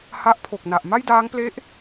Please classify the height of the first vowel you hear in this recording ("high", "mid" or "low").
low